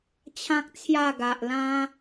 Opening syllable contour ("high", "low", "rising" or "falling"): high